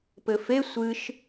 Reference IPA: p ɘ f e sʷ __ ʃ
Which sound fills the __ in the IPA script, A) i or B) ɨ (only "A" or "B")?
B